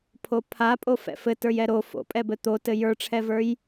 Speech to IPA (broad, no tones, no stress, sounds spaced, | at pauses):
pʰ o pʰ a pʼ o f ɛ̰ f ɘ t ə˞ j ɛ ɾ o f o̰ pʼ ɛ b ɘ t̪ o t ɘ j ə˞ ʈ͡ʂʰ ɛ v ə˞ j